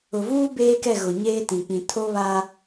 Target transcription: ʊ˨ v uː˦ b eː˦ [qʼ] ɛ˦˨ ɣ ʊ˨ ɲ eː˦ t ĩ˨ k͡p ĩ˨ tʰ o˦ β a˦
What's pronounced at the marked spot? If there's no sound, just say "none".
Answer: k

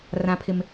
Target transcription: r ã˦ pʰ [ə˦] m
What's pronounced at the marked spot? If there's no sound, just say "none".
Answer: ɪ˦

